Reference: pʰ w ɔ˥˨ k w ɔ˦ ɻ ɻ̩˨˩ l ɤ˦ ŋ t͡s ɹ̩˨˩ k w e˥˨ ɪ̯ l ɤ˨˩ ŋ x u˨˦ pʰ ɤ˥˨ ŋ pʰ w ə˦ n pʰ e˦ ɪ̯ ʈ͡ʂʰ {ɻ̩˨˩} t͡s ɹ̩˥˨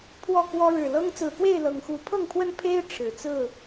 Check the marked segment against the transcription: correct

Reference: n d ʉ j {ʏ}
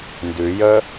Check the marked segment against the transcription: incorrect: ə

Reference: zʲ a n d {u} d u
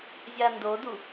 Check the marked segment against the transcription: incorrect: o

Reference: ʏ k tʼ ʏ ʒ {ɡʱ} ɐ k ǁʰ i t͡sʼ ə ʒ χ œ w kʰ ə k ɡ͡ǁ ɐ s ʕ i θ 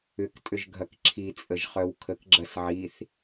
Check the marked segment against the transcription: correct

